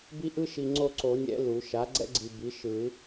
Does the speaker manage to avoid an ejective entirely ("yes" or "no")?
yes